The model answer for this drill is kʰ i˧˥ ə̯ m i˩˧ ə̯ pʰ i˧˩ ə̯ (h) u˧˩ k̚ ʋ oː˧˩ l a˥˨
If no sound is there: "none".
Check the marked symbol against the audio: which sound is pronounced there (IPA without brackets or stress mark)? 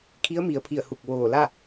h